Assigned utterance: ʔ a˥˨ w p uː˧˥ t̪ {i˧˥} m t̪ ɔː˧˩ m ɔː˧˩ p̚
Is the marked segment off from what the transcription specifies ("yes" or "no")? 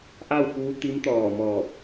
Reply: no